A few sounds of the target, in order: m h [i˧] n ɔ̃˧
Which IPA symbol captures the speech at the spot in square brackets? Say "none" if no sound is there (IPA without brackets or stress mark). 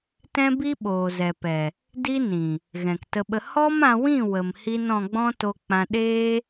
i˧